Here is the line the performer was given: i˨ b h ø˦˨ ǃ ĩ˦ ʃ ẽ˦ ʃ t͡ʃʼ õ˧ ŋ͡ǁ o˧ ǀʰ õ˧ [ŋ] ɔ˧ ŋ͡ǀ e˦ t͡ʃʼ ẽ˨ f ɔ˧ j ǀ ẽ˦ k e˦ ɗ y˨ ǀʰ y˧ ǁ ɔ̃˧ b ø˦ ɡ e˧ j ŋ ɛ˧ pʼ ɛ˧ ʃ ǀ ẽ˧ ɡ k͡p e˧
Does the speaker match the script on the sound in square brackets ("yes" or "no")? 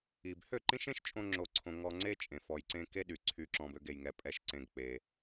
yes